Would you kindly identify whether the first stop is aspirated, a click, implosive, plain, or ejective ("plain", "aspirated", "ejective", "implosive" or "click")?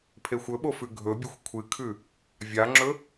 aspirated